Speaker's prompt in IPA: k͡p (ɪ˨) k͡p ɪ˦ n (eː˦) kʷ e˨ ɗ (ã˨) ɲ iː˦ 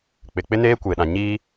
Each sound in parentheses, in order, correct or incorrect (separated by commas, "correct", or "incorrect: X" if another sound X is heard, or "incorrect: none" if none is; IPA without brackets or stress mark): correct, correct, correct